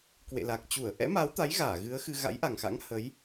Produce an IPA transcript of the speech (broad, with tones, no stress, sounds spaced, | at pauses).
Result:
k w ḛ˧˨ l a˨˩ k̚ t͡ɕ u˧˩ ə̯ ʔ ɛ̰˧˥ m aː˨˦ w t̪ a˨˦ j ɣ aː˧˩ ɣ ɨ˨˦ ə̯ x ɨ˧ ɣ a̰˧˥ j ʔ a˨˩ ŋ x a̰˧˥ ŋ h ə˨˦ j